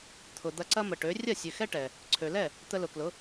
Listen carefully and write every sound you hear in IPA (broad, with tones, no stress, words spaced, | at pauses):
t̪ʰʊ˩d̪ɐ˧ǀɐ˥ mə˩ʈø˩˥ rʲɐ˥˩sʲø˩ xɛ˥ʈɛ˩ | ǀʰø˩lɛ˥˩ | t̪ə˧lʊ˩klʊ˩˥